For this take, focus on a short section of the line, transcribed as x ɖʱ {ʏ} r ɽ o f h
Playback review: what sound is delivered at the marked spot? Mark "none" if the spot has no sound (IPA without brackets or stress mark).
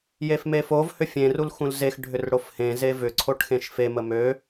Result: ʏ